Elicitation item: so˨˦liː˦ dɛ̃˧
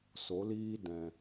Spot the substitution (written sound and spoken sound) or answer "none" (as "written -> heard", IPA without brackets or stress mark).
none